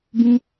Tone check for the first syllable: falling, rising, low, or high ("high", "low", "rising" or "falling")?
high